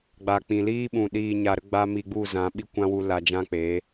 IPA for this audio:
ɡ͡b a˨ k͡p ĩ˨ l iː˦ ɓ ũ˨ ɗ iː˨ ɲ a˨ ɾ ə˧ ɡ͡b a˦ m i˧ ɡ͡b u˦˨ z ã˨˦ ɓ i˦ kʷ ã˦ w u˧ l a˧ d͡ʒ ã˦ k͡p eː˨˦

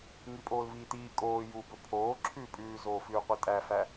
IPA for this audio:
ŋ i pʼ oː l v iː t iː kʼ oː j u b ɵ pʰ oː ǁʰ ʉː pʼ ʉː z oː f ʉː qʷ i tʼ æ f æ

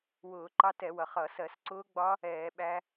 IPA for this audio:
w ʊː˧˩˧ ǃ ɑ˦˥ t ɛ˧˩˧ w ʌ˩ χ ʌ˧˩˧ s ɜ˧˩˧ s ǀ ʊː˦˥ ɡ͡b ɒ˦˥ | ɛː˧˩˧ ɓ æ˦˥

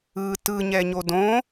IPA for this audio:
ɯ t ɯ ɲ ɛ ɲ o d õ

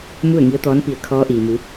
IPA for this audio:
m u˥˨ ə̯ ŋ i˧˥ ə̯ t̪ ɔː˧˥ n p i˧˩ ə̯ kʰ ɔː˧˥ ʔ iː˩ m u˩˧

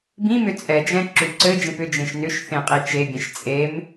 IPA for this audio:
b ĩ m ʏ t͡sʼ ɛ d͡ʒ ɛ̃ ǁ ʉ ǀ ɘ d͡ʒ ẽ p ʏ d͡ʒ ẽ ʃ n ʏ ʃ θ ẽ qʼ i t͡ʃ e bʲ ẽ ʃ t͡sʼ e m

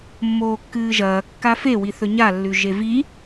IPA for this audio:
mː oː kː ɨː ʒ ɐː kː a f e w i θ ɵ ɲ a lː ʉ ʒ e v i

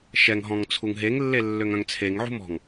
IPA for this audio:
ʃ ɛ ŋ ɦ ɔ̃ ŋ t͡sʰ u ŋ ɦ e ŋ lː e lː ø ŋ œ̃ ŋ t͡sʰ e ŋ ʕ ṳ m ɔ̤ ŋ

